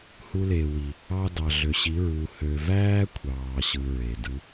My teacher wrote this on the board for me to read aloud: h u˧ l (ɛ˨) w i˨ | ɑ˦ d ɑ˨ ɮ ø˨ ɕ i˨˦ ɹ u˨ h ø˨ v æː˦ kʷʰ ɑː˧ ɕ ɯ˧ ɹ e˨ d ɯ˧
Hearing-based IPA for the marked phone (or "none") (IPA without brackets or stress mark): e˨